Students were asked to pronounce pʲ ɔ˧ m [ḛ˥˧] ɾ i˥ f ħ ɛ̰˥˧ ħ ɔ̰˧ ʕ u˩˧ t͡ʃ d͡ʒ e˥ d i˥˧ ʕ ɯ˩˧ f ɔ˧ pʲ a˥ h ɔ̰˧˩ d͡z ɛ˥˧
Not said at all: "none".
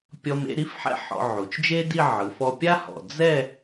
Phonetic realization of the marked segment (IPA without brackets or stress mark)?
ḛ˥˧